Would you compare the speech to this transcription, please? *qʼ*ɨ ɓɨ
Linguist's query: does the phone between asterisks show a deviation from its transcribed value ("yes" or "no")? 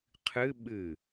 yes